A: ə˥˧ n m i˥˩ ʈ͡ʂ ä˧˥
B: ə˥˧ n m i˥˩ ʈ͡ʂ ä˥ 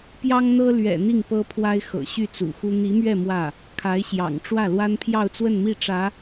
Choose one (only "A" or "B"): A